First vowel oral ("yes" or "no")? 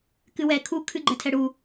yes